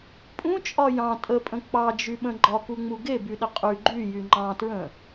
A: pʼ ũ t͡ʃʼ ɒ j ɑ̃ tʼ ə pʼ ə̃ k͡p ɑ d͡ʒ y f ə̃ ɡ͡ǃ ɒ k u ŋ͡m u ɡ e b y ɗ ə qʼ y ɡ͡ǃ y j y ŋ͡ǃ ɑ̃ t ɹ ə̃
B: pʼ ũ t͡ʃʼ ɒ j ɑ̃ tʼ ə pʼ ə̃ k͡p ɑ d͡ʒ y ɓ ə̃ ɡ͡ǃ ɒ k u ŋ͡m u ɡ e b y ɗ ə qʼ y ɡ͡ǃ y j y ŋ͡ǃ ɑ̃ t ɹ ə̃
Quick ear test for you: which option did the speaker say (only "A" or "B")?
B